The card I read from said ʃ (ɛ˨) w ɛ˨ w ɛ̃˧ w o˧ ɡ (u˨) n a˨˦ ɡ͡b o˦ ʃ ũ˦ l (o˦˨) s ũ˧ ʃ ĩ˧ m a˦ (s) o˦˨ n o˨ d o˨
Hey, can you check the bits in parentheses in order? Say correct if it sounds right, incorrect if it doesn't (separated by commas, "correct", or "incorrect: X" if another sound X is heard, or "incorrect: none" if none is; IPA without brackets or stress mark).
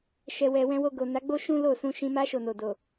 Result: correct, incorrect: o˨, correct, incorrect: ʃ